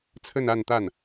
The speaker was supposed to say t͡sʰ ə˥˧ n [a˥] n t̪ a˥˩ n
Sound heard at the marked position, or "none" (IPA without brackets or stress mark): a˥˧